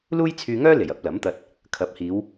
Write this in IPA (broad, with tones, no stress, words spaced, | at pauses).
luː˥jt͡sʰyː˧ŋœː˥le˨˩j ɐ˨˥p̚lɐ˨˥mt̪ɐ˧t̚ | kʰɐ˨˥p̚hiː˨˧w